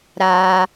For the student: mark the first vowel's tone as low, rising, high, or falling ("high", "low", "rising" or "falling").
low